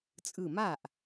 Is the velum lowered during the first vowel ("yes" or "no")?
no